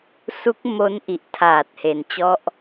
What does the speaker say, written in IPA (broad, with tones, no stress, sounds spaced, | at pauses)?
s u˦˥ k̚ m o˦˥ n ʔ i˨˩ ʔ tʰ aː˨˩ t̚ h e˩˦ n t͡ɕ ɔ˦˥ ʔ